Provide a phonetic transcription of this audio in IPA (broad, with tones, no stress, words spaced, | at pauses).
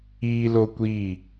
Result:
iː˦lo˦kʷiː˦˨